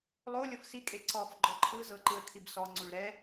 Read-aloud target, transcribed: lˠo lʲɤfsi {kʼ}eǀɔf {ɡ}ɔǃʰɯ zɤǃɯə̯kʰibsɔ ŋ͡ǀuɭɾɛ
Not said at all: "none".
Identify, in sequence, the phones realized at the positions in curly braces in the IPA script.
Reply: kʼ, ɡ͡ǃ

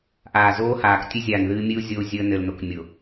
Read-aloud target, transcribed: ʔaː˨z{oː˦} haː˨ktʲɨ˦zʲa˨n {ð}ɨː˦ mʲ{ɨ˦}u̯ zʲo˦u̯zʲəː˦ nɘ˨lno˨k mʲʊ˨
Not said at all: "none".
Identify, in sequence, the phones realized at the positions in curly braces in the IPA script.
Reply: oː˦, ð, ɨ˦

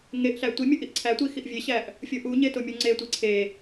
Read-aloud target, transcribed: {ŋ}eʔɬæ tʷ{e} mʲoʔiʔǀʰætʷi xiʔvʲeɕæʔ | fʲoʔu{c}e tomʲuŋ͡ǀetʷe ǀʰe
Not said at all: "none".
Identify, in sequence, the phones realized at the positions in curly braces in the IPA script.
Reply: ŋ, i, ɲ

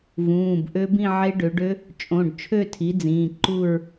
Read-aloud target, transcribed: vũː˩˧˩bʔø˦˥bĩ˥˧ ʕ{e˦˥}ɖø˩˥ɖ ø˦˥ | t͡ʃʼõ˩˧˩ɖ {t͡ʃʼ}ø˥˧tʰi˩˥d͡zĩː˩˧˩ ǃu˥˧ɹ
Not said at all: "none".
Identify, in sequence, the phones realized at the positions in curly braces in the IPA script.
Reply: e˦˥, t͡ʃʰ

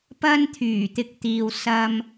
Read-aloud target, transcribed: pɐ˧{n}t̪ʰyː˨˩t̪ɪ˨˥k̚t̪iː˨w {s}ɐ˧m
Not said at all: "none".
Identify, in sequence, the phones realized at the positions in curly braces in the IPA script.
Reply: n, s

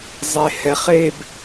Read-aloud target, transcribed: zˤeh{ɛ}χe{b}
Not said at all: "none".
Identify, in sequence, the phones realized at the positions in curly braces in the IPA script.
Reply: ɛ, b

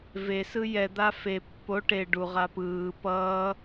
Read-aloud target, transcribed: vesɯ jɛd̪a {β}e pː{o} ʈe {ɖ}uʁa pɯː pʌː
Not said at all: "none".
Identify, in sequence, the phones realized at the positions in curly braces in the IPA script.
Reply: f, o, ɖ

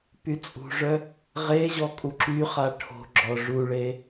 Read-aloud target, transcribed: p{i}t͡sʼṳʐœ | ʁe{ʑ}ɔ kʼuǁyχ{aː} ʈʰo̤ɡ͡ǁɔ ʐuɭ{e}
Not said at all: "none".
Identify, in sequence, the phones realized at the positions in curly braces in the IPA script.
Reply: y, ʑ, a, e

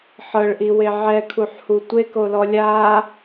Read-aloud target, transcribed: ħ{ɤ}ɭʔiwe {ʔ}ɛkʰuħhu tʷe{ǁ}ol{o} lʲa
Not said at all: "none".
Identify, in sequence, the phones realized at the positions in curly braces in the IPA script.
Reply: ɤ, ʕ, k, ɔ

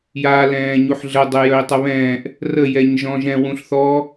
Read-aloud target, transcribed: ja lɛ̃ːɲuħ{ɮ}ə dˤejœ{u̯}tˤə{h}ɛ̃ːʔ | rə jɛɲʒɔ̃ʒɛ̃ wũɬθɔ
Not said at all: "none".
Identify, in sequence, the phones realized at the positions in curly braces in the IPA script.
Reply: ɮ, i̯, β

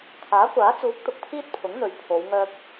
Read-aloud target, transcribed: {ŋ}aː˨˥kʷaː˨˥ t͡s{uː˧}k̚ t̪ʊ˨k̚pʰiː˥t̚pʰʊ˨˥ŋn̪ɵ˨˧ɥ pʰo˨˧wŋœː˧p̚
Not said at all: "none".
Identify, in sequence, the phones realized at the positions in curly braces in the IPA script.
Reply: kʰ, uː˨˥

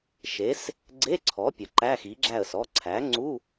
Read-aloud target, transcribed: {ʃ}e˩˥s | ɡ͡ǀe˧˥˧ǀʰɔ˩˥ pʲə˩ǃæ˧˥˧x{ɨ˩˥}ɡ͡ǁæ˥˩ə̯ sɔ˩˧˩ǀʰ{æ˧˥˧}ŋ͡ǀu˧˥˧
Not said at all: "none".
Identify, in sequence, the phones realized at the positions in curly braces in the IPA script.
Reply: ʃ, i˩˥, æ˩˥

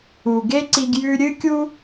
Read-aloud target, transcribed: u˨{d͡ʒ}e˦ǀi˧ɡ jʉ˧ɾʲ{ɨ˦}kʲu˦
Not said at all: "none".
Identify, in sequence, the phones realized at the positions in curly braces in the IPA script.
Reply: ɡ, ɨ˦

